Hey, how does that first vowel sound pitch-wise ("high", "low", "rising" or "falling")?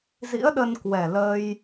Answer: rising